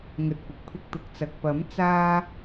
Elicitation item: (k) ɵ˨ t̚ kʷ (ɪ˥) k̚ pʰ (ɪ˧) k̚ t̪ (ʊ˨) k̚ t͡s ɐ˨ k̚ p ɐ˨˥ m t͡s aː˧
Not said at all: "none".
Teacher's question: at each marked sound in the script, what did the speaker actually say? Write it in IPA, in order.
ŋ, ɪ˨, ɪ˧, ʊ˨

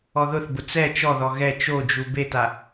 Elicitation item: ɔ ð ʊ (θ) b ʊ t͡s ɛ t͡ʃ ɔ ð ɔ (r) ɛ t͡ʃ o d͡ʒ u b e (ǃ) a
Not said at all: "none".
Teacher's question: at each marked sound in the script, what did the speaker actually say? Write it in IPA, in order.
θ, ɣ, t

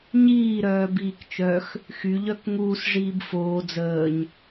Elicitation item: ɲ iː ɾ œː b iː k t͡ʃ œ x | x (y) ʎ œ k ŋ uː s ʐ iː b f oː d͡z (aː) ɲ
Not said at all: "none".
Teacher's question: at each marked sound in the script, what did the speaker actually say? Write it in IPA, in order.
y, əː

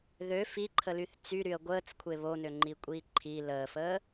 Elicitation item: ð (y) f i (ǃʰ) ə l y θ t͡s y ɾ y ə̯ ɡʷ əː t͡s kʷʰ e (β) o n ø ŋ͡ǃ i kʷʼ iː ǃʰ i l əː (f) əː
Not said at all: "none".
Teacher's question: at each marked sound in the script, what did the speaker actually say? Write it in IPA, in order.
ø, ǃʰ, β, f

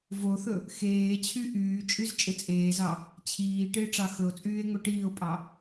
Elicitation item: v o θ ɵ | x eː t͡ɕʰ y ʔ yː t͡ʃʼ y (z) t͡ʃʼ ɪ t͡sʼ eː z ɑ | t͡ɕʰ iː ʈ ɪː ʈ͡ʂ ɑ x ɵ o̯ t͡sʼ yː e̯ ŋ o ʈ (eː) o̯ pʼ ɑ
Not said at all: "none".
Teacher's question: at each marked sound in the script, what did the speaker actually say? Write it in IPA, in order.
z, iː

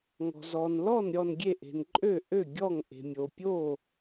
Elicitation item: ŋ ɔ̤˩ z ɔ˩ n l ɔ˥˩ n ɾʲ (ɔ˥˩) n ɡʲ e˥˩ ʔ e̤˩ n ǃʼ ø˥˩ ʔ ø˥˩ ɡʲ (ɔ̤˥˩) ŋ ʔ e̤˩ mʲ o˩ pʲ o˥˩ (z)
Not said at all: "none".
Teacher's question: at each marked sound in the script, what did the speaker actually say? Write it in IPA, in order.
ɔ˥˩, ɔ˥˩, none

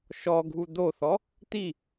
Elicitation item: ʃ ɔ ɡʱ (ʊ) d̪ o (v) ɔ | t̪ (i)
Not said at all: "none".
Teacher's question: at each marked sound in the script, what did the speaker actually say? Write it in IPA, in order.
u, θ, i

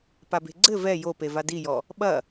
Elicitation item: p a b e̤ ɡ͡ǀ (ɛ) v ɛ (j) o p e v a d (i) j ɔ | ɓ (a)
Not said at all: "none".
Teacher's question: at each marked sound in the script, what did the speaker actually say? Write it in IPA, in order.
ɘ, j, i, ɐ

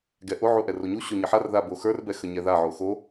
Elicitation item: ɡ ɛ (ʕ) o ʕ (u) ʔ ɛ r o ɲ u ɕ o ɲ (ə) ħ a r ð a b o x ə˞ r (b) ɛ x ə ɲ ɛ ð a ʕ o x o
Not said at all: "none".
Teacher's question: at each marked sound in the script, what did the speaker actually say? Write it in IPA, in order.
ʔ, u, ə, b

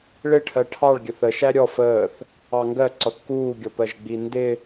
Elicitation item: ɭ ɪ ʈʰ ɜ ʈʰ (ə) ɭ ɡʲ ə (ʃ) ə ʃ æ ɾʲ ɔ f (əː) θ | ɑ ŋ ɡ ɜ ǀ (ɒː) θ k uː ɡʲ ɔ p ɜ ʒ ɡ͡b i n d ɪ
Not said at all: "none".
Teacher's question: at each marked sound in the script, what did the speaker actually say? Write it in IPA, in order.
ɑ, θ, əː, ɒ

